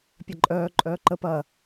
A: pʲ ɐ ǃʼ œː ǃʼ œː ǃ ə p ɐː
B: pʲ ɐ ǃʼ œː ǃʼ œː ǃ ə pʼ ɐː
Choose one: A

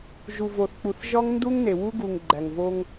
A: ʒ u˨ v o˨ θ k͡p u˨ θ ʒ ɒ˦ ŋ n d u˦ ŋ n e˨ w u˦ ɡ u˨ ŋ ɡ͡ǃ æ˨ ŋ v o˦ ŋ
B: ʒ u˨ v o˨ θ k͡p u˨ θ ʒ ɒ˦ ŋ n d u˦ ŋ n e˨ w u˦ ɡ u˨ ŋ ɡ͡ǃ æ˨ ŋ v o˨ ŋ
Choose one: A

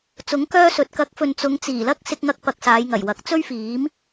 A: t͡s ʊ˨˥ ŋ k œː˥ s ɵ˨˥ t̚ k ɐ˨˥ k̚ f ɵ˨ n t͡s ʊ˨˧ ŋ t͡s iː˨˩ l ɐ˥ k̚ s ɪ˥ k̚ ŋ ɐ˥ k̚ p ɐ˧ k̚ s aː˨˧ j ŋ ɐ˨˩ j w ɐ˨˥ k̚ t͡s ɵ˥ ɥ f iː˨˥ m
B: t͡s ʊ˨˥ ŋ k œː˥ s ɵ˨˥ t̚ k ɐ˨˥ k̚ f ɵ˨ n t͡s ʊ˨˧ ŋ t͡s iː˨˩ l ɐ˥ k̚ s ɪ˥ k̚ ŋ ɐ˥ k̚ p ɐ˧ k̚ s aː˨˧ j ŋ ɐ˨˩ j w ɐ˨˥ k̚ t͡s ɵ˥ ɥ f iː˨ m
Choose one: A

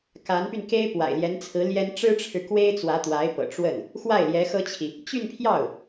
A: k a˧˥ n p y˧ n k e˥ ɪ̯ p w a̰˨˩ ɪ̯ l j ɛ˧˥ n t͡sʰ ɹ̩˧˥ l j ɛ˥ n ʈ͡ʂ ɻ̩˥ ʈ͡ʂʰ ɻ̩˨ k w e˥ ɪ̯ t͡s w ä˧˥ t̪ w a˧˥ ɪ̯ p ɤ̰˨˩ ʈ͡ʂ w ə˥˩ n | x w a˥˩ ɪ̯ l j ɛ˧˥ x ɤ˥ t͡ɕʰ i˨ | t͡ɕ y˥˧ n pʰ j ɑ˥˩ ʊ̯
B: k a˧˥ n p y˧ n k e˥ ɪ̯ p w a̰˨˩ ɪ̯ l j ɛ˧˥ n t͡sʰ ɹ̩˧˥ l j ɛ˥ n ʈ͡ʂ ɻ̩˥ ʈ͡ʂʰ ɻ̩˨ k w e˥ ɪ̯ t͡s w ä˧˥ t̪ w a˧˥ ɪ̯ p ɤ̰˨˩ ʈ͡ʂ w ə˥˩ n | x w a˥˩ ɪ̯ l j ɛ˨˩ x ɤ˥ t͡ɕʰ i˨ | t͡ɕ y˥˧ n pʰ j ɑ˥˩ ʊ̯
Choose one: A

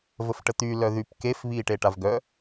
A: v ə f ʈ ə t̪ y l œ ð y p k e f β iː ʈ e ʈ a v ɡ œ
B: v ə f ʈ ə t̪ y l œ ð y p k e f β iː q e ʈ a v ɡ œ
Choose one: A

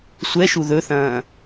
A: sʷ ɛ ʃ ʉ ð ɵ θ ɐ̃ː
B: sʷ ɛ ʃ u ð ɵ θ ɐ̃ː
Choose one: B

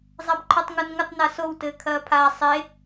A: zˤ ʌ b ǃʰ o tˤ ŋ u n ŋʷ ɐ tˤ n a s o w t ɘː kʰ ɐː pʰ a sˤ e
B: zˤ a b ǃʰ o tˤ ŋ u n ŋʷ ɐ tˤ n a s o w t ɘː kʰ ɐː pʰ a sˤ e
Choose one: B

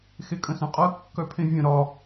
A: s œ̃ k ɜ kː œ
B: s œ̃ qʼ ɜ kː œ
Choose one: B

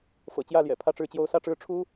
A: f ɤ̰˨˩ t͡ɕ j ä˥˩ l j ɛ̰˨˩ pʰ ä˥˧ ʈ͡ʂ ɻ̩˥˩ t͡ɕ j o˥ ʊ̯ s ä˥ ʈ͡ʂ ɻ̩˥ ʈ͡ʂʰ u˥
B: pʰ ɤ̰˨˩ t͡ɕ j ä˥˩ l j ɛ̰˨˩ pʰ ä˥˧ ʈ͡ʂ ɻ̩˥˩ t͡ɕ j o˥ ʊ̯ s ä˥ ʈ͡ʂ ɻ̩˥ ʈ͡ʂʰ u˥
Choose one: A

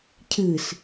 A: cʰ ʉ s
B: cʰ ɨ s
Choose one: B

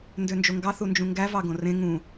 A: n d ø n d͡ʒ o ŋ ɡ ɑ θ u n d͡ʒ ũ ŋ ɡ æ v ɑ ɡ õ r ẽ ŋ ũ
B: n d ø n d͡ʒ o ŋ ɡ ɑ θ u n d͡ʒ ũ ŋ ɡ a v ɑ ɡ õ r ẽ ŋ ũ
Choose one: A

